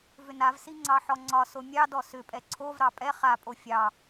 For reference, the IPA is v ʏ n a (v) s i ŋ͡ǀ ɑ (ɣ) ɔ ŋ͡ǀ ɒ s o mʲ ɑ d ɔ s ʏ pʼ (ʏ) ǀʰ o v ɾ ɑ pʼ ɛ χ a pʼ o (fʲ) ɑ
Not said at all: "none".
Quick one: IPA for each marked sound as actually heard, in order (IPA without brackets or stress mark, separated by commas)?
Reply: v, ħ, ɛ, fʲ